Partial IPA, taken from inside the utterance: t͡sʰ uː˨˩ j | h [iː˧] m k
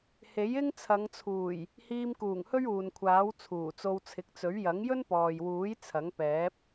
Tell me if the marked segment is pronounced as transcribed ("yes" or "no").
yes